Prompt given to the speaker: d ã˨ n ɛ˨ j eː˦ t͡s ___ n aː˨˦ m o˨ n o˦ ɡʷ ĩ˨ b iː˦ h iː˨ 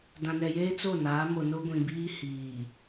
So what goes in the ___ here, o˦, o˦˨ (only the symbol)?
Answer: o˦˨